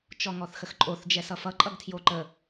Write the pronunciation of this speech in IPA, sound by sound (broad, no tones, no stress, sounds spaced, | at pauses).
t͡ʃ ɔ ŋ ɔ θ x ə x ǃʼ o θ d͡ʒ ɛ s ʌ f ʌ ǃʼ ʌ ɡ tʰ j o ǃ ə